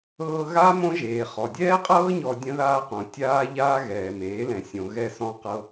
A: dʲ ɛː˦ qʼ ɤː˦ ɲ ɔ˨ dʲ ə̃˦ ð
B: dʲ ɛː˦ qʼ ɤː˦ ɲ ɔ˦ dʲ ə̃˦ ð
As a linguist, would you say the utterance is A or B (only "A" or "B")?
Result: A